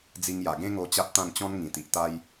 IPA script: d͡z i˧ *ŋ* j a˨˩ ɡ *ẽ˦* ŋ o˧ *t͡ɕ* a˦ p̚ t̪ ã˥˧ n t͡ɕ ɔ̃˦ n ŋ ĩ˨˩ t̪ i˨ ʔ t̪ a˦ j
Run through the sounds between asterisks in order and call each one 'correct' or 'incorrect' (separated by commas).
correct, correct, correct